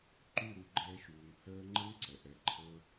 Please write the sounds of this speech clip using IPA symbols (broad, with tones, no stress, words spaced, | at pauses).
ǃʉ˦˨ɾu˧ɡ͡ǃɛː˧ʃuː˨ŋ həː˦ ŋ͡ǃə˦ŋǀɛ˨ʔɛ˧ ǃʰɤ˧